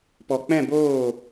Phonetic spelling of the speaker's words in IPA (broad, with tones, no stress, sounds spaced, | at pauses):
p ɔ˨ k͡p ɛ̃˦˨ b oː˦˨